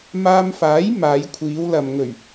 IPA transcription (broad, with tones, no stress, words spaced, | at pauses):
maː˧mfaː˨˥j maː˨˧jkʷʰiː˨˧wlɐ˨m ŋɵ˨˩ɥ